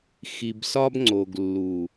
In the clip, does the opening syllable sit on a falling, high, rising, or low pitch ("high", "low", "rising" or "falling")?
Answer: low